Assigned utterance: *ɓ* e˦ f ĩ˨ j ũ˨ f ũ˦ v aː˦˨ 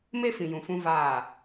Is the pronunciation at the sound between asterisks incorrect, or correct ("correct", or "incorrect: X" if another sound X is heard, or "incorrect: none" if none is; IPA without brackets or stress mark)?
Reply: incorrect: m